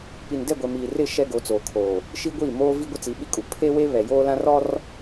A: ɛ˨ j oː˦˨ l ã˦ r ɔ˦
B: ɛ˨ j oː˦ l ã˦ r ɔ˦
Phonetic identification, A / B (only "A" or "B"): B